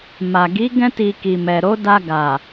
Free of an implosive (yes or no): yes